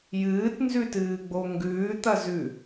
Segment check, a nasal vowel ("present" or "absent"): absent